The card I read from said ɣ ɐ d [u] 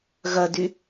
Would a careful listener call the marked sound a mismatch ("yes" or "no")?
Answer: yes